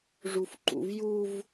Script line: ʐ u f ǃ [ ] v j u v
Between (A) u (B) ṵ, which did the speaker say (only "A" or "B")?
B